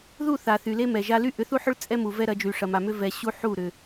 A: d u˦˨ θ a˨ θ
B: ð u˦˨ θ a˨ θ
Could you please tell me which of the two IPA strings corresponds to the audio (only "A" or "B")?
B